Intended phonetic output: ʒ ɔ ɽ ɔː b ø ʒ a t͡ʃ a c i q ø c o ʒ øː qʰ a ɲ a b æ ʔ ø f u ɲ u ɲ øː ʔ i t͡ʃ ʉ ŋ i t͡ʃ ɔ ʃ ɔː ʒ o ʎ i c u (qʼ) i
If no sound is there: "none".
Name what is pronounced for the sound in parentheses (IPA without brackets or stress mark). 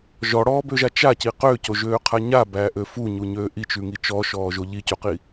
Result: q